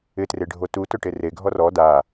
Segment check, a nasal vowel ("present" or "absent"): absent